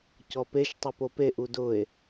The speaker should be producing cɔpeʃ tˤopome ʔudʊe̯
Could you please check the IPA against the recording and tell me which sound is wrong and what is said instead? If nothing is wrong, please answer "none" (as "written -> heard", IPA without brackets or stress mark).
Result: m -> p